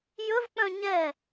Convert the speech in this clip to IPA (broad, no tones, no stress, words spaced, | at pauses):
jɵvk͡pœ̃ ɲɛ